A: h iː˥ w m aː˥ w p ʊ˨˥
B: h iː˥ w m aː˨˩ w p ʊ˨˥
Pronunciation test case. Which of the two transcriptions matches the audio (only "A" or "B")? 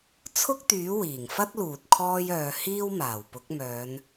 B